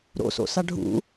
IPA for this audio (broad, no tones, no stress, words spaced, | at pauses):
ɾo̰so̰sa ɖʱṵ